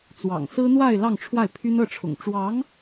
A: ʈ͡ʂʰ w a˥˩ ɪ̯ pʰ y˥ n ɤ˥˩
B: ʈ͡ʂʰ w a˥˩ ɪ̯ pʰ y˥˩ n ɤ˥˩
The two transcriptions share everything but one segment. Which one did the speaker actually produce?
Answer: A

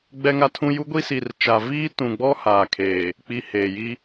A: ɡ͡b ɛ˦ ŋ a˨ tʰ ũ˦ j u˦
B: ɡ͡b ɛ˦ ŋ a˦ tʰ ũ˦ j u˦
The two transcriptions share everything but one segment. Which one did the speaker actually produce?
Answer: B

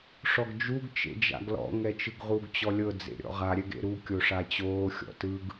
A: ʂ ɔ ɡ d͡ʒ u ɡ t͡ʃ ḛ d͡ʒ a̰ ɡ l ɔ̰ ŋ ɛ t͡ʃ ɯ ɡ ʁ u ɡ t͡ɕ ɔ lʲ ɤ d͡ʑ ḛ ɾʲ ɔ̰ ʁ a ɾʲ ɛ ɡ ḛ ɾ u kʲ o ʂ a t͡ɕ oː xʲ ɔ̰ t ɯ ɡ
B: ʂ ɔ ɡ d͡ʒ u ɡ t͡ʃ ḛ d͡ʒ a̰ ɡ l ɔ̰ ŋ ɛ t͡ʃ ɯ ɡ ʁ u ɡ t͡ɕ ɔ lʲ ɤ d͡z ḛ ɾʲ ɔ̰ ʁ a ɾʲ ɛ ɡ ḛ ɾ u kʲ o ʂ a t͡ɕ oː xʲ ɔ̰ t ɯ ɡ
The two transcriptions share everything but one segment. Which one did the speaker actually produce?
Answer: B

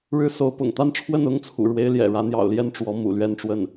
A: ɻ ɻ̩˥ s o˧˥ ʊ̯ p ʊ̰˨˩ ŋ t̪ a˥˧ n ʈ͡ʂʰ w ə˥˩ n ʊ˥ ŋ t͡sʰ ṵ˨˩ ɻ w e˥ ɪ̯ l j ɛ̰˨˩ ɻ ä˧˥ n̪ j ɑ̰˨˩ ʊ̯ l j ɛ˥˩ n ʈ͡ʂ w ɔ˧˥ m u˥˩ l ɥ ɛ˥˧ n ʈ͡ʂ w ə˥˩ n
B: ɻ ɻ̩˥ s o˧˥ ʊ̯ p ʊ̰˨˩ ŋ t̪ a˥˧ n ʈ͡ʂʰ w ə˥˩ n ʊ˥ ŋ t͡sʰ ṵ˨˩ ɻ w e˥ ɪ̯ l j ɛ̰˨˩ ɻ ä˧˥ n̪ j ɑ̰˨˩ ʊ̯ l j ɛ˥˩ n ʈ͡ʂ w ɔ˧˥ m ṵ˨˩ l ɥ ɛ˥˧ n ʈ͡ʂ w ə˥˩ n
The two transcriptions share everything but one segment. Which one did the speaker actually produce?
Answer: B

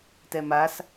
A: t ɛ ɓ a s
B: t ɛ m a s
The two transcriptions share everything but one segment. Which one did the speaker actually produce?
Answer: B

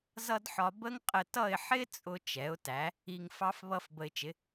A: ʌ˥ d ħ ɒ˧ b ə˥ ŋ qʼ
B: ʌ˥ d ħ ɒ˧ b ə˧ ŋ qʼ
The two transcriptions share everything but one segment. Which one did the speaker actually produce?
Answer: A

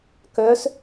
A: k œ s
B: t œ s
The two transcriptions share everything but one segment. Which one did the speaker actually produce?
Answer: A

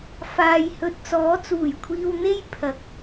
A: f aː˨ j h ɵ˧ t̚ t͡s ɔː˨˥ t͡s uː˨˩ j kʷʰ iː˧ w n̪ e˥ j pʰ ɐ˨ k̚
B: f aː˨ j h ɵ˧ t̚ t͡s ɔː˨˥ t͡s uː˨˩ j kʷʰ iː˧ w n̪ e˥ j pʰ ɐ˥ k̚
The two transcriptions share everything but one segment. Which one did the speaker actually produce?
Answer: A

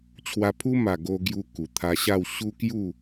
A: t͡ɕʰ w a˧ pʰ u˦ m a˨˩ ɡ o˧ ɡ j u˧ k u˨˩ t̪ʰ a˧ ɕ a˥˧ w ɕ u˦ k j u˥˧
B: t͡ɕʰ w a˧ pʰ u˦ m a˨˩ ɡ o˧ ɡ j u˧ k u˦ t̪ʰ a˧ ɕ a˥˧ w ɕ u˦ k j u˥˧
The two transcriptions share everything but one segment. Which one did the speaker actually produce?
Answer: A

